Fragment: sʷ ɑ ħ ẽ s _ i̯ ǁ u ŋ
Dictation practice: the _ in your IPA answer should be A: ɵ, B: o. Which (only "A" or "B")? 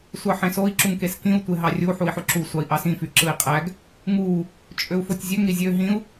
B